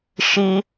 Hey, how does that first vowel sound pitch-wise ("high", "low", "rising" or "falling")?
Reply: high